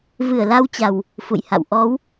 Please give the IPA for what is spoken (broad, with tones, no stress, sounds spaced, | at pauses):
v ɨ˧˩ ə̯ l a˧ w t͡ɕ a˨˩ w | f ṵ˧˨ j h a̰˧˨ w ʔ ɔ˨˦ w